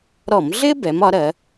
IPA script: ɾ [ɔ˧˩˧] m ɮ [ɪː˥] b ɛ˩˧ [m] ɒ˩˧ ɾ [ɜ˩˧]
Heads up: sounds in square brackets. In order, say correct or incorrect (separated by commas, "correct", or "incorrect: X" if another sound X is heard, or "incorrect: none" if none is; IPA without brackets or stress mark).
correct, correct, correct, correct